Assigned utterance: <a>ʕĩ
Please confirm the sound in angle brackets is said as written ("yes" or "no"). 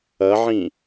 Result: no